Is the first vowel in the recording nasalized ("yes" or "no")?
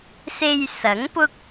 no